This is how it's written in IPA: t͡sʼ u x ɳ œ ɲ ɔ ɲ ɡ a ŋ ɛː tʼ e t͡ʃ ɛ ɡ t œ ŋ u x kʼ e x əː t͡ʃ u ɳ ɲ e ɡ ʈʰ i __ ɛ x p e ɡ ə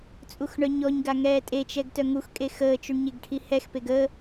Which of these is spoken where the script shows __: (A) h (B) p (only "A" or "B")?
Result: A